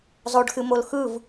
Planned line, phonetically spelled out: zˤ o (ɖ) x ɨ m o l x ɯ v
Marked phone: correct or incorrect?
correct